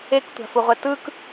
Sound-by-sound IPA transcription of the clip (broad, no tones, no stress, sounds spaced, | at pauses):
e k tʷ a̤ f u ʁʷ ɛ t ɯ k